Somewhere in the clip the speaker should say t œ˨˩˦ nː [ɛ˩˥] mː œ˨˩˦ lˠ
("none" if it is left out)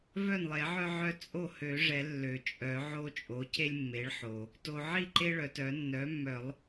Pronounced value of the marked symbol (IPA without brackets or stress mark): œ˩˥